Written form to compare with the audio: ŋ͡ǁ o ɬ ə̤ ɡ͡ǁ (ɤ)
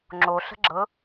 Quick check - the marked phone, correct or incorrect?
correct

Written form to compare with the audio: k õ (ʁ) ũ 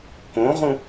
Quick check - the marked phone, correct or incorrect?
correct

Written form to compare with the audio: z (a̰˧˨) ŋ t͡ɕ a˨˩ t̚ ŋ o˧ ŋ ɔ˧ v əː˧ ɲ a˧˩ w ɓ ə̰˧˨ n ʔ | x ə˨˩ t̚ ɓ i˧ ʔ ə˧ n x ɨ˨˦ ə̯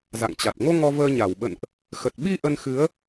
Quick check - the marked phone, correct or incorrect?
correct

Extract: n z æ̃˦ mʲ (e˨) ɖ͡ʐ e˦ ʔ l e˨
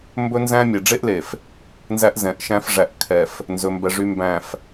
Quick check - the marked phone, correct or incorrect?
correct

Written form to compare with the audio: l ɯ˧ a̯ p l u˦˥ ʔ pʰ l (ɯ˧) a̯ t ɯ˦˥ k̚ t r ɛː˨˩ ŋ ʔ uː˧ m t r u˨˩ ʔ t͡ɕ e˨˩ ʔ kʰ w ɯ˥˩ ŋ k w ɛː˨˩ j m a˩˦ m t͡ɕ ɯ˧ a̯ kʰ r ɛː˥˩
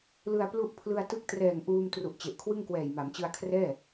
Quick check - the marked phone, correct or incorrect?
correct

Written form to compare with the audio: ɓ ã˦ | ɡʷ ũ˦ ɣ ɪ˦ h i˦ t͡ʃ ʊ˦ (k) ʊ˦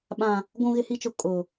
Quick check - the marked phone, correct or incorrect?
incorrect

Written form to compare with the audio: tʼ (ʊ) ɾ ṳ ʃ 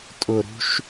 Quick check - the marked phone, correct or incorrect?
correct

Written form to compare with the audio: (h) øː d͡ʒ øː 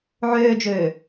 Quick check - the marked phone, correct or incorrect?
incorrect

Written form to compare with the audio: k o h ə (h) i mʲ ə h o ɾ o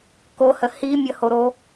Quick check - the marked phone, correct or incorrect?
correct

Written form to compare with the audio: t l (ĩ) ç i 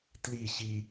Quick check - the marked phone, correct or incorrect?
incorrect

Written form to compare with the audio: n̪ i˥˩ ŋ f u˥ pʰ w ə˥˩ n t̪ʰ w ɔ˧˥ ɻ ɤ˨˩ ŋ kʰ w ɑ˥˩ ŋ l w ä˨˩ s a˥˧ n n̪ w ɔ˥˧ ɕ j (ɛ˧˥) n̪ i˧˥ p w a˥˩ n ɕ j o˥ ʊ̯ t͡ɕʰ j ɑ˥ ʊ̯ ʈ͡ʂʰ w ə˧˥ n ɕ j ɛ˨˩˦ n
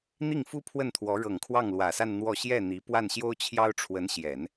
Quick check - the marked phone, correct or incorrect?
incorrect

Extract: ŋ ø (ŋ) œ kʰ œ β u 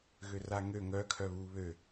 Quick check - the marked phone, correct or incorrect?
correct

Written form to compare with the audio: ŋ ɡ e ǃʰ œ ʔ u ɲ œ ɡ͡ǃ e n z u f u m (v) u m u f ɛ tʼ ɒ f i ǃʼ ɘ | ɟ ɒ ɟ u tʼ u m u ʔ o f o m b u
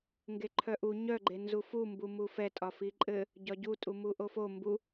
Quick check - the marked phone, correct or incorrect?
incorrect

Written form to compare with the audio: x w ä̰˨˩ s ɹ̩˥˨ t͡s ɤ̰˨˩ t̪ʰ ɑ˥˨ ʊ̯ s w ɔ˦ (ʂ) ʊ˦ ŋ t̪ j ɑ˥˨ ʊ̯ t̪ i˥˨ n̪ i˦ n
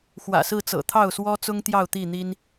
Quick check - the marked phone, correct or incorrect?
incorrect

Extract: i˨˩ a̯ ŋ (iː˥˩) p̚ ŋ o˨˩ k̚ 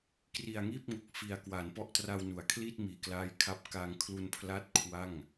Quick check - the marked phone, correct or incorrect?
correct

